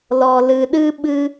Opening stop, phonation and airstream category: implosive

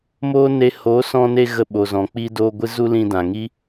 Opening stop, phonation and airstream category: implosive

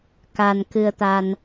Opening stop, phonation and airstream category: plain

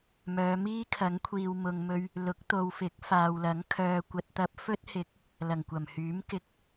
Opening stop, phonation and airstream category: aspirated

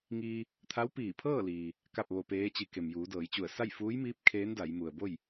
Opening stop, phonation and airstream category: aspirated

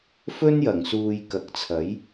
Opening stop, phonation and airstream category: plain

